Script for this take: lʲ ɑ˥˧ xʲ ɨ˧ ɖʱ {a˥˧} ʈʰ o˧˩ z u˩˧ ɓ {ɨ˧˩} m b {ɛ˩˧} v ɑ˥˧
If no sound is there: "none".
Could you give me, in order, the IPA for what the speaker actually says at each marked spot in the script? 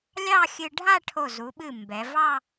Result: a˥˧, ɨ˧˩, ɛ˩˧

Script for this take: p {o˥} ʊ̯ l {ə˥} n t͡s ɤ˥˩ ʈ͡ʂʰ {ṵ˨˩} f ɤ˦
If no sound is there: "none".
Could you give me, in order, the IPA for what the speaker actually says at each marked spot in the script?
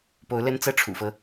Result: o˧˥, ə˥, ṵ˨˩

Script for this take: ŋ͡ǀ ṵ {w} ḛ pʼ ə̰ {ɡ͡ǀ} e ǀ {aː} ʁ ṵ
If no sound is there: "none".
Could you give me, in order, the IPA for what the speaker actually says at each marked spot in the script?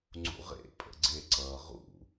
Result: ʁ, ɡ͡ǀ, ʌː

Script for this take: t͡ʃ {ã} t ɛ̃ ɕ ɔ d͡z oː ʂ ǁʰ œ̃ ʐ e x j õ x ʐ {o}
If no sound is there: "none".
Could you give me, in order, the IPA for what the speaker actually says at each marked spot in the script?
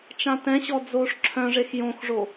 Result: ã, o

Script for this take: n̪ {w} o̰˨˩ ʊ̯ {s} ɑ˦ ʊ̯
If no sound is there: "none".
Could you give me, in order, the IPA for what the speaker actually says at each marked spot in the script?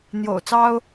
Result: j, t͡s

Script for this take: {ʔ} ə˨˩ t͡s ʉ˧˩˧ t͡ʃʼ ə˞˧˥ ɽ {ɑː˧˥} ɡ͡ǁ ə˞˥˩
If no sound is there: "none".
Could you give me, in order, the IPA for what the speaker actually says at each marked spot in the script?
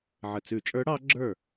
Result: ʕ, ɑ˧˥

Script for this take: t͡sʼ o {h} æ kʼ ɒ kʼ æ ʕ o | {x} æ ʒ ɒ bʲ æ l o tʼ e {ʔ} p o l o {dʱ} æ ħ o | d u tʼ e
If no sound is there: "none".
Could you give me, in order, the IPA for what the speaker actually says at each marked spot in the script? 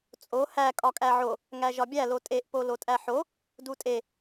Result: h, ŋ, ʔ, tʼ

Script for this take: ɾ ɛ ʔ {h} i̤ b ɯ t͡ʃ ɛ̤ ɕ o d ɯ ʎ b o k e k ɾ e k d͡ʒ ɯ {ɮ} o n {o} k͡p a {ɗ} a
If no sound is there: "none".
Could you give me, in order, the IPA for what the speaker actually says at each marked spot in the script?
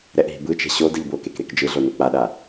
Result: ɦ, ɮ, o, ɗ

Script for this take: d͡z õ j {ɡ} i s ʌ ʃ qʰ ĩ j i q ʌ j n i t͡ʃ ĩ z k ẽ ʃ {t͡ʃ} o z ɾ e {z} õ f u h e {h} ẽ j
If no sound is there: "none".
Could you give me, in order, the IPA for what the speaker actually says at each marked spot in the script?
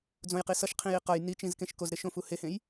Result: q, k, ʃ, h

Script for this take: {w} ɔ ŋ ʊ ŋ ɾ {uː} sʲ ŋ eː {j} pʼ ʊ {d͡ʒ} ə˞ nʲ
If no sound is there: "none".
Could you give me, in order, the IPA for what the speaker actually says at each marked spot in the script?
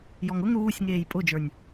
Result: j, uː, j, d͡ʒ

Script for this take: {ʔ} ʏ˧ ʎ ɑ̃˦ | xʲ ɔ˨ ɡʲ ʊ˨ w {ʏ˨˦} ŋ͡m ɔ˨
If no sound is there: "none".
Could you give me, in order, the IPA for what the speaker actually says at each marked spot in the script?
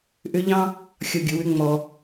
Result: ʔ, ʏ˨˦

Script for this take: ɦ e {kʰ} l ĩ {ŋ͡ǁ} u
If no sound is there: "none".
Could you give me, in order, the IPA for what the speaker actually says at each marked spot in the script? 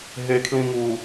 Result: kʰ, ŋ

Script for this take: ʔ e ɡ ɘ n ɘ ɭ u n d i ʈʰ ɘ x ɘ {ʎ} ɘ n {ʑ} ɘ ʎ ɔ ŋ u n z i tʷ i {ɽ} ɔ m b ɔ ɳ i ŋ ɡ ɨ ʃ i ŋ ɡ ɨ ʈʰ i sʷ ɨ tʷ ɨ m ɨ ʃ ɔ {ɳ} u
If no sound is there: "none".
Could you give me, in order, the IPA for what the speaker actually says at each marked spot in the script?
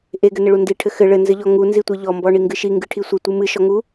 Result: ɭ, z, ʎ, ŋ

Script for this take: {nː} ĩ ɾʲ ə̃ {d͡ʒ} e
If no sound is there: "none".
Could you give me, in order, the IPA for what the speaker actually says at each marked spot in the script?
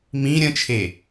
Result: m, t͡ʃʰ

